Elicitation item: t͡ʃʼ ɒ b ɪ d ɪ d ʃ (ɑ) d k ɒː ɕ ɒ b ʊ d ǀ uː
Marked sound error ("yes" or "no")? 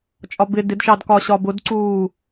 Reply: no